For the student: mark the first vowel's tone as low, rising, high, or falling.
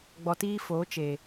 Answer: low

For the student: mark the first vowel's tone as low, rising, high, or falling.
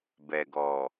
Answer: low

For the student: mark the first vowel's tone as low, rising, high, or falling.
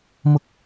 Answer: high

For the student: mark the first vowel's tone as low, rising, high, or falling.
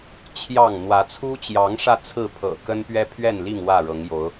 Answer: falling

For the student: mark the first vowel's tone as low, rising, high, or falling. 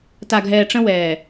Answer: low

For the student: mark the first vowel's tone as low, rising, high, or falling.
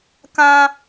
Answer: high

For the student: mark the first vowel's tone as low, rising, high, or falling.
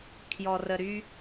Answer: low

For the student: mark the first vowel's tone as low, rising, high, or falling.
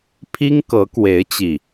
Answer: high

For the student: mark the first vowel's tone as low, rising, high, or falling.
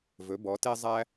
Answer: rising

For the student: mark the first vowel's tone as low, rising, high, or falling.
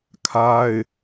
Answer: high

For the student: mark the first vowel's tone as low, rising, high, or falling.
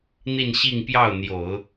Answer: falling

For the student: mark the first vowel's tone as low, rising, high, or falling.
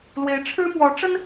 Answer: rising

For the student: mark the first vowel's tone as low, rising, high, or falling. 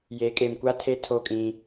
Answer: rising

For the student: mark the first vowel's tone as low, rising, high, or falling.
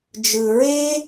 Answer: low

